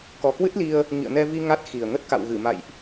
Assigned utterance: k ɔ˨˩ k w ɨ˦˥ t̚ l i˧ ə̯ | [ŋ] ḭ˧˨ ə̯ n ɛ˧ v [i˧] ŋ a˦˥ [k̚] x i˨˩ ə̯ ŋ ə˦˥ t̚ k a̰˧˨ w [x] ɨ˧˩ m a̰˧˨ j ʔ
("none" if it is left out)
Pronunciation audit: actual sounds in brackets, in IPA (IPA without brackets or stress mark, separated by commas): ŋ, i˧, t̚, ɣ